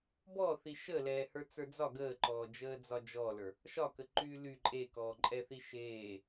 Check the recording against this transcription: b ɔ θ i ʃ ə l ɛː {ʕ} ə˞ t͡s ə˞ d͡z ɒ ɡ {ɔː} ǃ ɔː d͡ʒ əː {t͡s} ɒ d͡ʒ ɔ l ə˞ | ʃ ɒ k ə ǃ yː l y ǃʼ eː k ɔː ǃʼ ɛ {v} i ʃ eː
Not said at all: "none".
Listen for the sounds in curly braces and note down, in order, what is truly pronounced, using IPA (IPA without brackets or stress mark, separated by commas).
h, əː, d͡z, θ